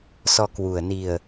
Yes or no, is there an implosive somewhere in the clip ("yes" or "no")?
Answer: no